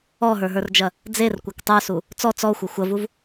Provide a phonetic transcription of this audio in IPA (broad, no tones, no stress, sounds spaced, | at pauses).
ɔ ɦ ə˞ ɦ ə˞ r d͡ʒ ɐ | d͡z e r kʷ ɐ k tˤ ə˞ s u | t͡s ɔ t͡s ɔ xʷ ɐ xʷ ɐ v u v